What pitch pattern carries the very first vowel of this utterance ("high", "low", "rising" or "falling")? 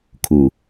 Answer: low